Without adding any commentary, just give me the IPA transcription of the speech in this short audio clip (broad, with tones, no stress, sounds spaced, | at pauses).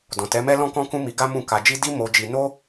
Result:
d ɔ̃˨ t ɛ˨˦ m ɛ˦ l ɔ̃˦ k ɔ̃˦ k ũ˦ m i˧ ɡ a˦ m ũ˦˨ k a˧ d͡ʒ i˦ d i˦ m o˧ d͡ʒ i˧ n o˦